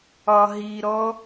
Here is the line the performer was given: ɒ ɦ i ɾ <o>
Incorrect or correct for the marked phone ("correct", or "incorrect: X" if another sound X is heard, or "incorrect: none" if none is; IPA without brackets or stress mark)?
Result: incorrect: ɔ